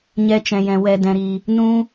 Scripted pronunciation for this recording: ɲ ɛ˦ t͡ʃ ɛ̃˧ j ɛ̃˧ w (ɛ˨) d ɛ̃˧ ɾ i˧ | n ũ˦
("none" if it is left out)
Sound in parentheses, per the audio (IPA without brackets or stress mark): ɛ˧